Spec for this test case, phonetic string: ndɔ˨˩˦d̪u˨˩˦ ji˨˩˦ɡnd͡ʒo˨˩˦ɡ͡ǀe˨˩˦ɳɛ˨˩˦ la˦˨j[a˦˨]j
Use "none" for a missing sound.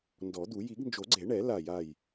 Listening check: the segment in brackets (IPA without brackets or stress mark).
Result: a˦˨